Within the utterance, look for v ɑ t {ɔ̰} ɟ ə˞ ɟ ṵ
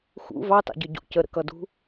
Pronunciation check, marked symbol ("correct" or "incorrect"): incorrect